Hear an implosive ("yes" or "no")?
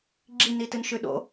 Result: yes